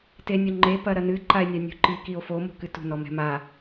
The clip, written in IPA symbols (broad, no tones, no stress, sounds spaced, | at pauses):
t e nʲ o ŋ͡ǃ e p ɐ ɾ ɐ n ɨ ǃ a e̯ nʲ a nʲ ṳ ǃ i k i o̯ f o m o̤ k ɨ t ṳ n ɔ m ɛ̤ m a